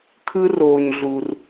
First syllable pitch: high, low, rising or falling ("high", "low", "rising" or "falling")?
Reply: high